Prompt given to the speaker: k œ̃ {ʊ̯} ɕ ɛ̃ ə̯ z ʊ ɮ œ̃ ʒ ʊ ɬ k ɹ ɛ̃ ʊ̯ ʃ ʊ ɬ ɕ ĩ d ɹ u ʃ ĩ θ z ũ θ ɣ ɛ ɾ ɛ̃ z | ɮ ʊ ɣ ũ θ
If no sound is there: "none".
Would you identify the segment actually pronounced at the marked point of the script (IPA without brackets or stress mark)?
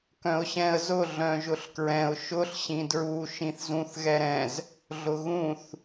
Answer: ʊ̯